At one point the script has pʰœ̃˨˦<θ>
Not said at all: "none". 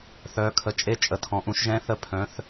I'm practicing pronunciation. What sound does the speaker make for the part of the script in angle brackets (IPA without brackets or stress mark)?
θ